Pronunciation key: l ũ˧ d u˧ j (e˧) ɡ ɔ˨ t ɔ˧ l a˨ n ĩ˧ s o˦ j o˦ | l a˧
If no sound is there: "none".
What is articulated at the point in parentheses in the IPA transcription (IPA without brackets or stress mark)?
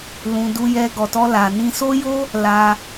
ɛ˧